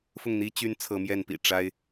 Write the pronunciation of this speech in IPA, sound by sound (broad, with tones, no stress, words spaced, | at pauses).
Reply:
fʊ˥˩ŋn̪i˥ t͡ɕy˧˥n t͡sʰɤ˧˥mjɛ˥˩npḭ˨˩ ʈ͡ʂa˥ɪ̯